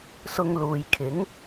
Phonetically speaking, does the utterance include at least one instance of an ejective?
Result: no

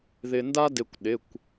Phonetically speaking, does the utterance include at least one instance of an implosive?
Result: yes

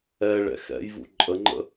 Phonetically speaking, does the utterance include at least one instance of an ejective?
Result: yes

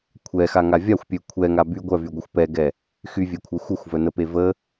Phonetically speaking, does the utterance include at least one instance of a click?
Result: no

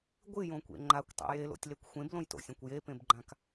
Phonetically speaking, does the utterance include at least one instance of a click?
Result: yes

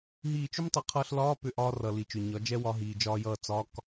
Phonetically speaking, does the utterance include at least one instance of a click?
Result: no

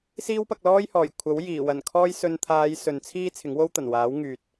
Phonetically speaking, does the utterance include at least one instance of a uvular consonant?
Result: no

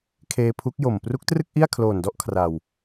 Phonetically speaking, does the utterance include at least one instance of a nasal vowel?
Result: no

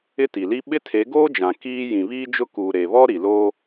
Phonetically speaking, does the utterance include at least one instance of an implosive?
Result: yes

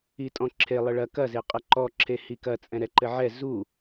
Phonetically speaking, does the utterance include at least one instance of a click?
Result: yes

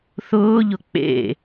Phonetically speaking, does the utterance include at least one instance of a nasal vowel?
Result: no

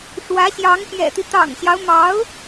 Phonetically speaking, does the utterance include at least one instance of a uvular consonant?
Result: no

